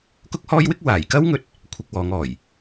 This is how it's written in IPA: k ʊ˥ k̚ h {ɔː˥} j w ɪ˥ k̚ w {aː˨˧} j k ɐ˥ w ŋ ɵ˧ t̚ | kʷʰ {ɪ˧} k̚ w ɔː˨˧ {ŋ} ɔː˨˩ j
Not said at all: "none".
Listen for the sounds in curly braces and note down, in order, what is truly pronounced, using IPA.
ɔː˥, aː˨˩, ɪ˧, ŋ

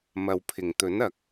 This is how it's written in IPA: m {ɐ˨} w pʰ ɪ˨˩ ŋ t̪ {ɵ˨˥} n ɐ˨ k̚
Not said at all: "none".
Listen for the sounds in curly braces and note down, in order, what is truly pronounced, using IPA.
ɐ˨, ɵ˨˥

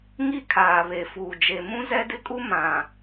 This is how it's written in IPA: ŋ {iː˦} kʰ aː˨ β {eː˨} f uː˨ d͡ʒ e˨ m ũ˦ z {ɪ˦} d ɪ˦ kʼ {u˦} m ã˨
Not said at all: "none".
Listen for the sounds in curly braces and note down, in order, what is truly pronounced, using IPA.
i˦, e˨, ɛ˦, u˦

